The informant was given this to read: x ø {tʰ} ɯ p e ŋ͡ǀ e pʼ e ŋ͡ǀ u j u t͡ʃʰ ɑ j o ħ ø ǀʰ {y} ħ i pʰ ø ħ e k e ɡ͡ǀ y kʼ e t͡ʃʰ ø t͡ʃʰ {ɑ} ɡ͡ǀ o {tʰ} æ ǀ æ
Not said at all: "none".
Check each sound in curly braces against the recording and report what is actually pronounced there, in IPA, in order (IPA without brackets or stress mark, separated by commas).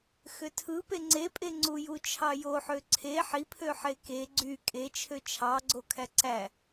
tʰ, e, ɑ, kʰ